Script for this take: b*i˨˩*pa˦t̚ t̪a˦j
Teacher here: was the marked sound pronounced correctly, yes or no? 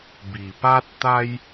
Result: yes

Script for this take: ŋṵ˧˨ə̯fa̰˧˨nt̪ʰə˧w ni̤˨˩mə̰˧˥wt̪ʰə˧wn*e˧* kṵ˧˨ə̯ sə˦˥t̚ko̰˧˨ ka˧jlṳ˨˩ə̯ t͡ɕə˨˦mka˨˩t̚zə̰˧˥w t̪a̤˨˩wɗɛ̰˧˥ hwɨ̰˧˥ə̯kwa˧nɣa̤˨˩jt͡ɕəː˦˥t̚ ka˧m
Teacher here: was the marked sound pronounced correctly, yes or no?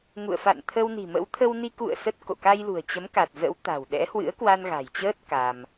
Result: no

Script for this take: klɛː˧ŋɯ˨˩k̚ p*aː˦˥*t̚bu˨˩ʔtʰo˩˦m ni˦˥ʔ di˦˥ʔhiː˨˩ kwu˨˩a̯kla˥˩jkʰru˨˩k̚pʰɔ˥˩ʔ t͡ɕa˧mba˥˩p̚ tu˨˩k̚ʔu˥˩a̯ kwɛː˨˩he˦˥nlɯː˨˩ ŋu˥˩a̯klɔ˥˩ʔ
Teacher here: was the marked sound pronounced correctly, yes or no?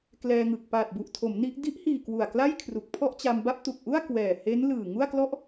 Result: no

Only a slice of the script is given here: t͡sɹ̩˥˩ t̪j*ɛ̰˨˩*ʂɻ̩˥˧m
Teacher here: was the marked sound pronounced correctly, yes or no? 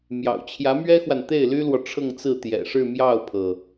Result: yes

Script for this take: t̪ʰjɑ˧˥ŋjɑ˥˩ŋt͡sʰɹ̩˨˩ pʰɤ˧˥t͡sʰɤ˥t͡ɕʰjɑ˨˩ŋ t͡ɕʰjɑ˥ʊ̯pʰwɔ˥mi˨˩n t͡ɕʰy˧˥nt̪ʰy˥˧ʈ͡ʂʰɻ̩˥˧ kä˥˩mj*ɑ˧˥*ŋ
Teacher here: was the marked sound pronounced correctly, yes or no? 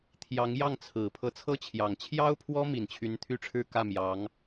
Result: yes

